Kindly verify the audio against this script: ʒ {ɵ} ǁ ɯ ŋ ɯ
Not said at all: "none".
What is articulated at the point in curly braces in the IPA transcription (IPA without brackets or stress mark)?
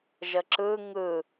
ə